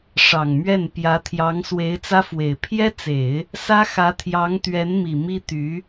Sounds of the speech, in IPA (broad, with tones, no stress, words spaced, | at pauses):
ʂɑ˨˩ŋmɥɛ˥˩npjä˧˥t̪ʰjɑ˧˥ŋ swe˧˥ɪ̯t͡sä˥fwe˨˩ɪ̯ pʰjɛ˥t͡se˨˩˦ɪ̯ | sä˥xä˧˥t̪ʰjɑ˧˥ŋ t̪ɥɛ˧˥n mi˨˩mi˥ t̪y˧˥